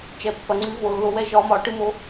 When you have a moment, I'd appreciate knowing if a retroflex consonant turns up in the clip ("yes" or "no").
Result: yes